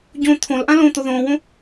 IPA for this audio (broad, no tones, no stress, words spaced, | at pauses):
ɟõ t̪ʰõlʔã lõt̪o ðõːwõ